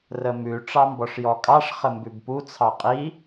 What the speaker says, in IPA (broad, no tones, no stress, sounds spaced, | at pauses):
r ə m ʉ ʈ͡ʂ ɑ m b ɔ ʂ j ɔ kʼ ɑ ʂ χ ə m b ʉ b p u t͡sʰ ɑ qʼ i